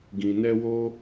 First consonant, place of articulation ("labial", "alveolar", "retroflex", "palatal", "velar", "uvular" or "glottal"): velar